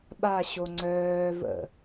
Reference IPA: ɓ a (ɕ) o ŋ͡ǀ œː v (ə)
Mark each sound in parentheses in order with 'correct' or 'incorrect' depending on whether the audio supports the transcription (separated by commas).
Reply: correct, incorrect